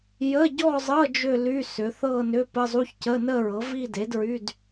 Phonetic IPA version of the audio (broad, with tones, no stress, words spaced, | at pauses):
jə˧˥˧ɟɔ˥˧zˤɤ˧˥˧ d͡ʒʏ˥˧ ly˧˥˧ sʏ˩˥ θɤ˥˧nʏ˧˥˧ pə˧˥˧zˤu˧˥˧ç cə˧˥˧nə˥˧ɹɤ˩˥vi˥˧ de˩˥dɹy˧˥˧d